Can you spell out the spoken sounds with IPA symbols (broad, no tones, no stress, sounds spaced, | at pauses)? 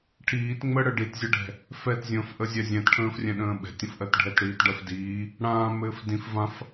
ʈʰ iː t ŋ͡m ə ɽ ə ɖ i t zʲ ə ɖʱ ɛ̤ | f ɛ t zʲ ə̃ː f ʔ ə zʲ ɛ zʲ ɛ̃ t ʈʰ ə̃ː f rʲ ɛ̃ ɗ ə̃ː ɓ ɛ̤ tʲ ə̃ f ʔ ɜ t ɖʱ ɛ t ɽ iː t ɖ ɜ f d iː | ɽ ãː m ɘː f d ĩ f v ã f